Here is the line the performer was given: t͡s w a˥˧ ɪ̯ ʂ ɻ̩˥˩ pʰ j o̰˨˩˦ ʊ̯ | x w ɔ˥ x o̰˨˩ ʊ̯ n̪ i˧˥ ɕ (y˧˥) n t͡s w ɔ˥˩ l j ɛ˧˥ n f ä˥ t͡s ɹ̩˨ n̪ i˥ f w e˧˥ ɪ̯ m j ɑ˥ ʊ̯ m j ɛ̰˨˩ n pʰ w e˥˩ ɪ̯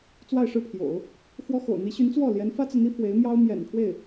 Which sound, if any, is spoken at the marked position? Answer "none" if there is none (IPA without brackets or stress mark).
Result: y˧˥